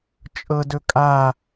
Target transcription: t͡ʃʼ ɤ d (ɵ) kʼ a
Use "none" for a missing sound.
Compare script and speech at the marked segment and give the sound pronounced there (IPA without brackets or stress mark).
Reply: ɵ